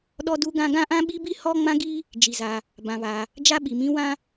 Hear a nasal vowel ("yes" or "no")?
yes